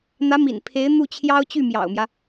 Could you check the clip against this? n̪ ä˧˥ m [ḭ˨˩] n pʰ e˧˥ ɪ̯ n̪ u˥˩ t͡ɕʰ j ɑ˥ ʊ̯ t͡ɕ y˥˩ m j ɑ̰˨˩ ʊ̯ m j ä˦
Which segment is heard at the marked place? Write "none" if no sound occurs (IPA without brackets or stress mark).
ḭ˨˩